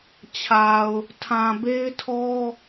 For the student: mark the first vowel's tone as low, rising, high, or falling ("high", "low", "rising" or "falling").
low